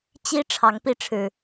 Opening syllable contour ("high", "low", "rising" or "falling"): high